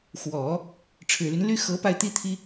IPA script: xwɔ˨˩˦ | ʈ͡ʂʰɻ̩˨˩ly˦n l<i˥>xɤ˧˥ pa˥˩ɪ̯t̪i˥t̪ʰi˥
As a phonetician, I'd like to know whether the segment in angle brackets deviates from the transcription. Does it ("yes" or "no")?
yes